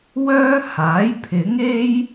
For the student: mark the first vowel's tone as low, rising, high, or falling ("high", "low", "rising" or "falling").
high